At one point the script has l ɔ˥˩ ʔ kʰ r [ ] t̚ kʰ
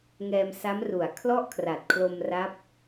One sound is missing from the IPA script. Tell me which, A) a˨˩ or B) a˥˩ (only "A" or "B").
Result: A